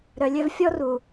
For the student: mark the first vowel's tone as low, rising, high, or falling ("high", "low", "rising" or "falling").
low